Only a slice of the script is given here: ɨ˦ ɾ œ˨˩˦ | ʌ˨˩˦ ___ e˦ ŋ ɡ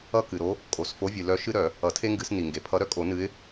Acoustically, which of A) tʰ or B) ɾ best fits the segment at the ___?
A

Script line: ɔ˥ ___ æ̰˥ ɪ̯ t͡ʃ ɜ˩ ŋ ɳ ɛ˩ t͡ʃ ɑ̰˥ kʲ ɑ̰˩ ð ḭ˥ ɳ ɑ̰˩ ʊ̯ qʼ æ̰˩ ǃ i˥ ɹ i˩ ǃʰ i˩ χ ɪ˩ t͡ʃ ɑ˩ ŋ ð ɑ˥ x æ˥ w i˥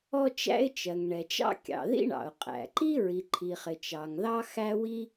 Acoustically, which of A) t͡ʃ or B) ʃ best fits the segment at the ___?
A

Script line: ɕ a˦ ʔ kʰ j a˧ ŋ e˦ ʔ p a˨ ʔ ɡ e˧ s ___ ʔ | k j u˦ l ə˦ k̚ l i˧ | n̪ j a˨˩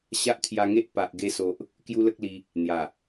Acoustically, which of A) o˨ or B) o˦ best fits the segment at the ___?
A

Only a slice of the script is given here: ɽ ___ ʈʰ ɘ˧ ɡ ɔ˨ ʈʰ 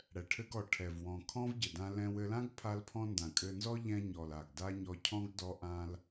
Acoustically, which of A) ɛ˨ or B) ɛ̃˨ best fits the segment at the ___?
A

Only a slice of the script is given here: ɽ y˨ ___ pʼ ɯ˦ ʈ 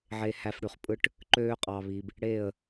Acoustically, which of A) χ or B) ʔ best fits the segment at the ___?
A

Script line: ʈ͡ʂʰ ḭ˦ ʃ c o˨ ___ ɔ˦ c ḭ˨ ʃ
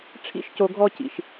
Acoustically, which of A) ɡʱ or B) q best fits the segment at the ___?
A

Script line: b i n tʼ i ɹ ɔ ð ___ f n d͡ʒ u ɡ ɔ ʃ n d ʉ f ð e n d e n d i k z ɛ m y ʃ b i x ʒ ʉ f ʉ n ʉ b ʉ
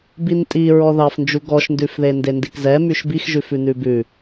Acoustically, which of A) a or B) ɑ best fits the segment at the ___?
B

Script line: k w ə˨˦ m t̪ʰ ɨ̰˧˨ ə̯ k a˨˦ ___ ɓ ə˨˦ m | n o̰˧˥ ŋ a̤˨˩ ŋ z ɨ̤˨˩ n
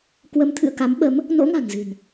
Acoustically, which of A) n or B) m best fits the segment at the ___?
B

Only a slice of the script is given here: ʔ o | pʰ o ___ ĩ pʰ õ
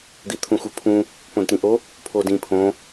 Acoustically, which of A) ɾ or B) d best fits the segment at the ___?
B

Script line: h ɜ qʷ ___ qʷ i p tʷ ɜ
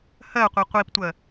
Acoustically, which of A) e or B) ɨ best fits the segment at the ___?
A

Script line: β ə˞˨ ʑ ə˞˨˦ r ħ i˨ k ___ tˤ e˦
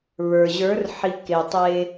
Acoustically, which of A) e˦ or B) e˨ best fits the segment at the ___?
B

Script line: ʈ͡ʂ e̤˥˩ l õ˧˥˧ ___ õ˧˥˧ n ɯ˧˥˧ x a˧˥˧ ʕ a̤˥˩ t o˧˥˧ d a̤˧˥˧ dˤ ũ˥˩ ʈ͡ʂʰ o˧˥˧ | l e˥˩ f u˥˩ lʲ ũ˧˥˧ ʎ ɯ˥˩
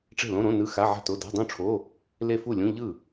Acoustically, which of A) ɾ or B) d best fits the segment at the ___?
A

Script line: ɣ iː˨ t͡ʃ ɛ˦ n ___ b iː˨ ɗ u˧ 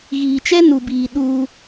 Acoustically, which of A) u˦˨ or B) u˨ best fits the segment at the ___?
B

